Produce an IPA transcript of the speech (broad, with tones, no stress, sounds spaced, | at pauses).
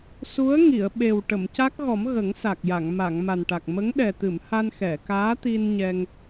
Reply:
s u˧˥ ə̯ ŋ i˨˩˨ ə̯ ɓ e˨˩ w ʈ ə˨˩˨ m c a˦˥ k̚ ɣ ɔ˨˩˦ m ɣ ə˨˩˦ ŋ s a˨˩ k̚ j a˨˩˨ ŋ m a˨˩˨ ŋ m a˨˩ n ʈ a˨˩ k̚ m ə˧˥ ŋ ɗ ɛ˨˩ t̪ ɨ˨˩˨ m h a˧ n x ɛ˨˩˨ k aː˧˥ t̪ i˧ n ɲ ɛ˧ ŋ